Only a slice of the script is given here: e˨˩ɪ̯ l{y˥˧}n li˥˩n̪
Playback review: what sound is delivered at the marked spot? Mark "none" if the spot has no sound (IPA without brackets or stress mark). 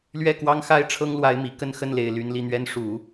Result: y˧˥